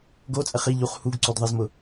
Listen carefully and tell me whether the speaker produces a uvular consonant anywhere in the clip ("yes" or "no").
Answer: yes